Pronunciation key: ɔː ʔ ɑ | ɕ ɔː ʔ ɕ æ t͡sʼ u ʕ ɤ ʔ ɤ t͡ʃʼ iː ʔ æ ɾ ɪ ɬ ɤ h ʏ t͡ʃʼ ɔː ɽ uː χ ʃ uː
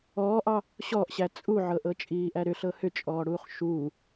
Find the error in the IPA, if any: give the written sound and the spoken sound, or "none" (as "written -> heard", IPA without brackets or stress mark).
ɪ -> ʏ